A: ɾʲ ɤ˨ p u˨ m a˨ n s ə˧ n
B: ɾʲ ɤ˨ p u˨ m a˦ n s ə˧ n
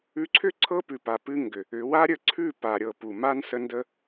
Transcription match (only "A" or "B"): B